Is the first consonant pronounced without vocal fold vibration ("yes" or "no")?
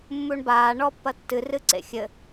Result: no